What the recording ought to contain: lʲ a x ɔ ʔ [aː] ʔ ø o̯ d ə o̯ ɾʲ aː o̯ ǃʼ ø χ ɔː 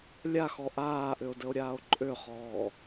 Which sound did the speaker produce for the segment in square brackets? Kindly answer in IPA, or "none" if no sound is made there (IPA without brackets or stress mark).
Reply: aː